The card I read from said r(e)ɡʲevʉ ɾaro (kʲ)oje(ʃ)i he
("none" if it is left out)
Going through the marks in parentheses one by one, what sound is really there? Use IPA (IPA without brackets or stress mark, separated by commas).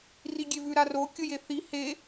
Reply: i, kʲ, θ